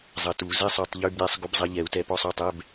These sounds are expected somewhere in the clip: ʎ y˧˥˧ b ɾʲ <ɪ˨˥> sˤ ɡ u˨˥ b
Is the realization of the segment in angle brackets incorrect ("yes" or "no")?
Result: yes